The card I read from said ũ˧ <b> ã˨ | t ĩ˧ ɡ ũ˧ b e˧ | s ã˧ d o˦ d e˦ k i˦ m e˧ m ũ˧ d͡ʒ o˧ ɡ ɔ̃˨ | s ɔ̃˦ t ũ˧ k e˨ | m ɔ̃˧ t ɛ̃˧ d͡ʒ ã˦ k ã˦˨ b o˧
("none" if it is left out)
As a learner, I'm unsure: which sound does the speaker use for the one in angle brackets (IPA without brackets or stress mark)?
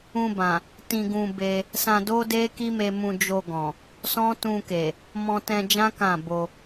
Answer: b